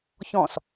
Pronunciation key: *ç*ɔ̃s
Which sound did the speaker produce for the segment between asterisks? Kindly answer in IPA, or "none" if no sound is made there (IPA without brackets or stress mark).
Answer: ç